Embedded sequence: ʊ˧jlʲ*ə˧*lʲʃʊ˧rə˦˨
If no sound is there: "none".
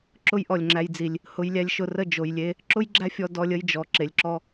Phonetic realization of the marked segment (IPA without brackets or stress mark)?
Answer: æ˧